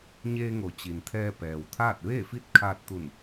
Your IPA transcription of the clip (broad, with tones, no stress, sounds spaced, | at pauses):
ɲ eː˧ ŋ o˩˧ t͡ɕ i˩ n t̪ʰ ɛː˧ p ɛː˩ w t̪ʰ aː˥˨ t̚ ʋ eː˥˨ f i˥˨ t̚ kʰ aː˧ t̚ t̪ u˧˩ n